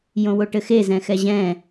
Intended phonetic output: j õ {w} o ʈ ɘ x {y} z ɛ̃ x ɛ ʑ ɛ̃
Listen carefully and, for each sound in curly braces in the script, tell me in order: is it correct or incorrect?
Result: correct, incorrect: e

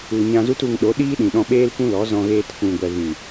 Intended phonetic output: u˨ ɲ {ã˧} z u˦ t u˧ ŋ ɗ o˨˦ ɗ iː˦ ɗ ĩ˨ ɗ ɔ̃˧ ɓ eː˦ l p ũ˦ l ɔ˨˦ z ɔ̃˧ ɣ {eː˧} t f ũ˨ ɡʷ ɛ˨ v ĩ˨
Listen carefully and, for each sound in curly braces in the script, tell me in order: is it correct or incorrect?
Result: correct, correct

